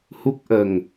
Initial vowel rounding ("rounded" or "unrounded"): rounded